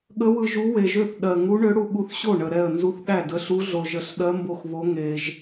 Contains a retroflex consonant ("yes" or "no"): yes